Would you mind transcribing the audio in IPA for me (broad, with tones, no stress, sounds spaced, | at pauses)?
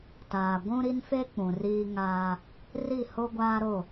t aː˨ ɡʷ ũ˦ ɾ i˦ n f e˦ k͡p ũ˨ r iː˦ ŋ aː˦ | r i˦˨ h o˦ ɡʷ aː˦ ɾ o˦˨